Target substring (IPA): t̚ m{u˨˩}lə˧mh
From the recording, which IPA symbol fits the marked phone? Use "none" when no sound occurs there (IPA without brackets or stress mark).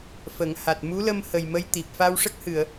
u˧˥